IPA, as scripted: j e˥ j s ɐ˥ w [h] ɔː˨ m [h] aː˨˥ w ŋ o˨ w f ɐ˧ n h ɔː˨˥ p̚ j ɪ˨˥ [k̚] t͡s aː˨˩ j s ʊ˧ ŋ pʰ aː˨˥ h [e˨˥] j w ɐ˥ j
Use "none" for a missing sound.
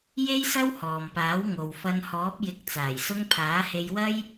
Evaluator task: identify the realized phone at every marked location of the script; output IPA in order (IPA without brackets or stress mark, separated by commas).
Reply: h, p, k̚, e˧